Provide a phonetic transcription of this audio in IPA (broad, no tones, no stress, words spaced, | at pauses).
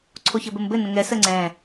ǀʰoçɘbɘmbɘ nə̃ŋɛ səŋ͡ǀɛ̃